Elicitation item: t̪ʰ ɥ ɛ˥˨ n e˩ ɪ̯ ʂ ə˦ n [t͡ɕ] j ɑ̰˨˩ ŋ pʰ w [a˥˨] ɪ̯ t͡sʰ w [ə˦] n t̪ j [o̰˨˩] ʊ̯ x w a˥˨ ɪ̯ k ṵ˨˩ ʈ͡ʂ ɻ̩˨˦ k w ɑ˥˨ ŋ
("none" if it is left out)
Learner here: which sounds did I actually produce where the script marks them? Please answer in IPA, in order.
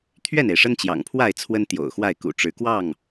t͡ɕ, a˥˨, ə˦, o̰˨˩

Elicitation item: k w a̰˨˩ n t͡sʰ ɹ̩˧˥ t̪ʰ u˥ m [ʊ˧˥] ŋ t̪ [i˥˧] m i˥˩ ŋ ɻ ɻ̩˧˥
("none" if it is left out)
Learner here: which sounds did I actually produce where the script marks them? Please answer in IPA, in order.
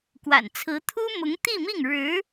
ʊ˧˥, i˥˧

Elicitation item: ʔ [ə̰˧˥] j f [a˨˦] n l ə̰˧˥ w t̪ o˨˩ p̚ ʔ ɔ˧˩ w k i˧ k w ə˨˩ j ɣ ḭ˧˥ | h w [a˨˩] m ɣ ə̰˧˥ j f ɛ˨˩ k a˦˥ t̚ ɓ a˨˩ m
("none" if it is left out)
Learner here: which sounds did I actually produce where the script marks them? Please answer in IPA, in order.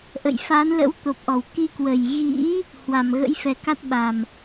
ə̰˧˨, a˨˦, a˨˩

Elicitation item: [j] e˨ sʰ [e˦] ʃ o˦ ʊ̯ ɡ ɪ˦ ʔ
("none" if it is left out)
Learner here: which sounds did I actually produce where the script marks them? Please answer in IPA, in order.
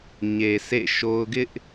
ɲ, ḛ˦˨

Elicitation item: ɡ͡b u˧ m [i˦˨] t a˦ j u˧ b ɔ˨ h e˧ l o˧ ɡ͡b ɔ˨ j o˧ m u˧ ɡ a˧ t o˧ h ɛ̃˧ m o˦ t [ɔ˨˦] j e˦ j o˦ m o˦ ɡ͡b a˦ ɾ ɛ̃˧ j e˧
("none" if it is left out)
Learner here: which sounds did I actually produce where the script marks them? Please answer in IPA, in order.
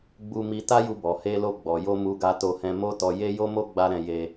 i˧, ɔ˧

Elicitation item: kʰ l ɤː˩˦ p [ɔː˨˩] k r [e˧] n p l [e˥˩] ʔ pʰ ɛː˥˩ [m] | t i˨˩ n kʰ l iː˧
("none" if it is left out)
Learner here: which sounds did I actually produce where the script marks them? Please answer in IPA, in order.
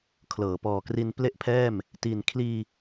ɔː˨˩, i˧, e˥˩, m

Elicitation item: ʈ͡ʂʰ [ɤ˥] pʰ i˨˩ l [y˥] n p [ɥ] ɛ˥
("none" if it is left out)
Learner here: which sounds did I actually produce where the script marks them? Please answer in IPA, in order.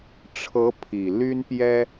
ɤ˧˥, y˥, j

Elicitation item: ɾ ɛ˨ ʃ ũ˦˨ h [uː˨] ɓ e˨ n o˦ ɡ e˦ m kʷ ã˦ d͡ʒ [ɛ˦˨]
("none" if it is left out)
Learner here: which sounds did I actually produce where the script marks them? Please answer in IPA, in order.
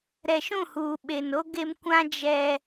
uː˨, ɛ˦

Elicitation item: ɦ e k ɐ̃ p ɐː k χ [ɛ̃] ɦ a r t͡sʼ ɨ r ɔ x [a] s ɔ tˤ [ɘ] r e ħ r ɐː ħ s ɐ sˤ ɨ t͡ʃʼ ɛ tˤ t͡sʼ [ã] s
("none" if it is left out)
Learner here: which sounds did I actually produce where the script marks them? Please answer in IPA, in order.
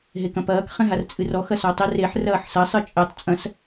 ɛ̃, ɐ, ɘ, ɐ̃

